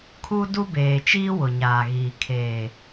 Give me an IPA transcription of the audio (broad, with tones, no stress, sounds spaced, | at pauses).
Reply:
kʰ u˦ d u˦ b eː˨ t͡ʃ iː˦ w ʊ˨ ɲ aː˨ ɣ iː˨ kʰ eː˨